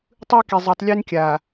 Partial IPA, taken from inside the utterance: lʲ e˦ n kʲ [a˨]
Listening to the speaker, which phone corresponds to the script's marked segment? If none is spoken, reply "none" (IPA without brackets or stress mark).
a˨